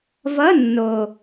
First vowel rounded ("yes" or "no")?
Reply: no